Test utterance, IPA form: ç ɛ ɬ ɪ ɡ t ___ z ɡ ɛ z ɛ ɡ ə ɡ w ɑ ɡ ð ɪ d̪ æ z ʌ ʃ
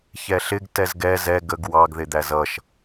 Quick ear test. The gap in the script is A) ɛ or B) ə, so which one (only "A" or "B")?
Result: A